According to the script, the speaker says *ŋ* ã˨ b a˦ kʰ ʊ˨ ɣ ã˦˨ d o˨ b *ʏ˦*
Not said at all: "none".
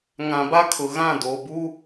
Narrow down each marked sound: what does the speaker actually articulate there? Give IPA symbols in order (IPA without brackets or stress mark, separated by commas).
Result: ŋ, u˦